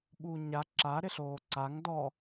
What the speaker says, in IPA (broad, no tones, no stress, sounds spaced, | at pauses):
ɓ uː ɲ a ǁ a ɾ ɪ ɬ oː ǀ a ŋ d ɔ